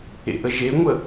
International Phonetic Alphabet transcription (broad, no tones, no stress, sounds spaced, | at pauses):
ḛ ʔ ə ʒ e ŋʷ ə